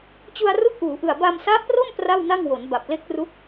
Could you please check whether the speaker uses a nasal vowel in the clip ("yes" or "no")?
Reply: no